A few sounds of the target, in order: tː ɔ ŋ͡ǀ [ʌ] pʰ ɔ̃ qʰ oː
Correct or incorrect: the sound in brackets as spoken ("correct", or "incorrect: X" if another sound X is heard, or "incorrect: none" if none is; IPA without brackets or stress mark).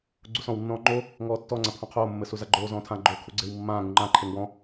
incorrect: a